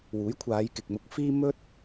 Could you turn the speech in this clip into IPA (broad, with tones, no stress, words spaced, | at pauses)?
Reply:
wuː˨˥jkʷʰaː˨˧jkɪ˨k̚mʊ˧k̚ fiː˥mɵ˥t̚